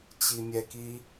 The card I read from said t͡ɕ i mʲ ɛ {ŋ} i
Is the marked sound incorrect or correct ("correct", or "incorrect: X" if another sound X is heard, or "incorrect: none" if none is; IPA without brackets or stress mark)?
incorrect: k